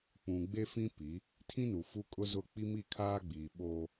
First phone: k͡p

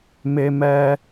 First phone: m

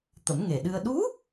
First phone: t̪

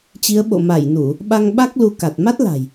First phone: t͡ɕ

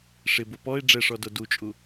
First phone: ʂ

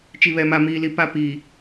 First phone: t͡ʃ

